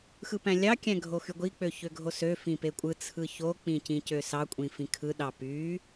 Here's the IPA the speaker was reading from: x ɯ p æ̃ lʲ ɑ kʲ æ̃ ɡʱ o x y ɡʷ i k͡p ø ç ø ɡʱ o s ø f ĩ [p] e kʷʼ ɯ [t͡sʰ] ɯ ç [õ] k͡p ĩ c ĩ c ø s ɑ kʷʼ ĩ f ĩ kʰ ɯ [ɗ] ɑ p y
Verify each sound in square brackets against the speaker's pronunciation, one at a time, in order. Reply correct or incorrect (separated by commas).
correct, correct, incorrect, correct